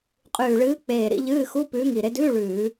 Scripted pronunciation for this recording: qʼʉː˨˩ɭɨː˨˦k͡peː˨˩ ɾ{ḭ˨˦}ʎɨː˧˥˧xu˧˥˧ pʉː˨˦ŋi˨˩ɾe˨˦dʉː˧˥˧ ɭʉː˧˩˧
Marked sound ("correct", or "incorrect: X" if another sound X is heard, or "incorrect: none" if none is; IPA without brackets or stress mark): correct